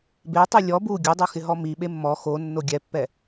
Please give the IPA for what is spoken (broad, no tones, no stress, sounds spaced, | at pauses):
b e tˤ e lʲ ɔ b u ɡʲ u dˤ o x ɪ ɦ ɔ m i ɓ e mː ɔ x o nː o ɡʲ ɛ pː ɛ